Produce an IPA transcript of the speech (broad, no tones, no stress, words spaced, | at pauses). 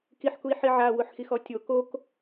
kiħkui̯ ħiʕa wʊħxixɔtʲo kok